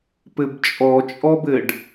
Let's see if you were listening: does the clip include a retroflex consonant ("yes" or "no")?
yes